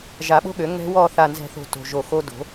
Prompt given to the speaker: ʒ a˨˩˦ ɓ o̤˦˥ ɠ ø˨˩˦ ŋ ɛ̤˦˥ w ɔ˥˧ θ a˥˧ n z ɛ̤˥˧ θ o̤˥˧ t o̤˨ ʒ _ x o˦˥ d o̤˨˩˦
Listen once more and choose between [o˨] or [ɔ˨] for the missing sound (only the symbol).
o˨